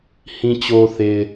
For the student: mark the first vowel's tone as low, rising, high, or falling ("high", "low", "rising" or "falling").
low